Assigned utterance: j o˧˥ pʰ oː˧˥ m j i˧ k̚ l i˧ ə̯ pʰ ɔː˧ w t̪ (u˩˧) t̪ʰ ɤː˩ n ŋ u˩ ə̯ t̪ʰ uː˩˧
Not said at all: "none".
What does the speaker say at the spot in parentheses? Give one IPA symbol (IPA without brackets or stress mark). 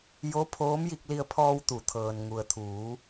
u˩˧